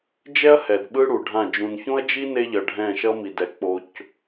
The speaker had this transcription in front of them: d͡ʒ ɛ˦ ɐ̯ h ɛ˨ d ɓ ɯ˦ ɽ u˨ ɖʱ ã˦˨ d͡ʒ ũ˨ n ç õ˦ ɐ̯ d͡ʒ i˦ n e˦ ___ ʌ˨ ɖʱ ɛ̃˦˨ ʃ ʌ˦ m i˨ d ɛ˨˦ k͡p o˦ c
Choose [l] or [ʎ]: ʎ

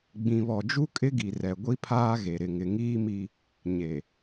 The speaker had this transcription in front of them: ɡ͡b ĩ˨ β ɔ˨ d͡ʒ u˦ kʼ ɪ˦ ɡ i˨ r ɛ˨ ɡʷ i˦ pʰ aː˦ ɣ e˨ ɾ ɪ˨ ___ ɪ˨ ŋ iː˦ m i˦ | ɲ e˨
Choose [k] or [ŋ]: ŋ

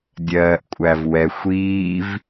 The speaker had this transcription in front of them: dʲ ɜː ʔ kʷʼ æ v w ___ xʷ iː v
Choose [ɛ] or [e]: ɛ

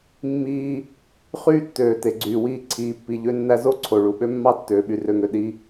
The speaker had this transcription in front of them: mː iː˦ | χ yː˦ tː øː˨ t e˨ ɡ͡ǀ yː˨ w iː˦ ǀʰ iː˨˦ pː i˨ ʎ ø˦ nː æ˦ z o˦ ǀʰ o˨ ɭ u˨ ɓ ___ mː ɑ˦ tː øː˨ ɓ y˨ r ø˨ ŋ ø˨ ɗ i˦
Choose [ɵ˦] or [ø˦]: ø˦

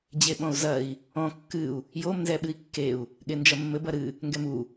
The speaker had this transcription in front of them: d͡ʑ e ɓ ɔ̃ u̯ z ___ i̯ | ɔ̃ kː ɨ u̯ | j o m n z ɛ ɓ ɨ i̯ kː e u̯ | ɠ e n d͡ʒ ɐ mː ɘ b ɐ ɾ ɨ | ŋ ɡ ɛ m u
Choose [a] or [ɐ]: ɐ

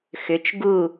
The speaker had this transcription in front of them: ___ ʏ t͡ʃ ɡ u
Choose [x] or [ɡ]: x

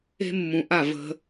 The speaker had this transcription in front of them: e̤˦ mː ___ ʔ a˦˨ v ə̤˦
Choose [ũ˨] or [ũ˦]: ũ˨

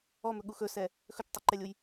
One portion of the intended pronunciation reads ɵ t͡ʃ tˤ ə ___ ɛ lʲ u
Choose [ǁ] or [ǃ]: ǃ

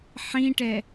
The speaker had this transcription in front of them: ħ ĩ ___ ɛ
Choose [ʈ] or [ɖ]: ʈ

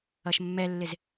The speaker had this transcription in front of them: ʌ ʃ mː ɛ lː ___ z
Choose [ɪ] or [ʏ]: ɪ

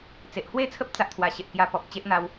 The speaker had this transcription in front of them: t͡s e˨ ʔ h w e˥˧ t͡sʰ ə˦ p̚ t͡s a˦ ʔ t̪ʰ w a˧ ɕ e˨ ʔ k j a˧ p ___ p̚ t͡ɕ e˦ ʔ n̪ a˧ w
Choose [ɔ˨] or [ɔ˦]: ɔ˨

